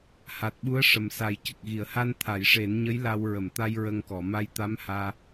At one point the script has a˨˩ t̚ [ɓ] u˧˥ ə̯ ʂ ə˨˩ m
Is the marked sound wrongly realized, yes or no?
no